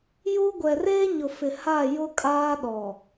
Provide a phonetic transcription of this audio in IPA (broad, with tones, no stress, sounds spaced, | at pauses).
j u˦ ɡʷ ɛ˨ r eː˦ ɲ ʊ˨ f ɪ˨ h a˦˨ j ʊ˦ kʼ aː˦ ɗ ɔ˨